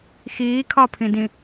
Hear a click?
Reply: no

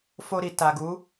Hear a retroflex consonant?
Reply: no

